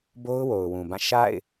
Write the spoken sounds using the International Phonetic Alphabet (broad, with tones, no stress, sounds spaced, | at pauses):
b o˦ ʊ̯ w o˨ ʊ̯ w ũ˨ b ã˦˨ ʃ a̰˦˨ ɪ̯